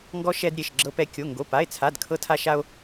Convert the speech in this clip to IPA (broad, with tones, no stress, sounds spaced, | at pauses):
ŋ ɡ ɔ˥ ʃ ɛ˥ d ɾʲ e˧˥˧ ʃ ɡ͡ǁ ɤ˥ p ɛ˥ kʲ o˧˥˧ ŋ ɡ o˧˥˧ p a˧˥˧ e̯ t͡sʰ a˧˥˧ d kʰ ɤ˥ tʰ a˥ ʃ a˥ o̯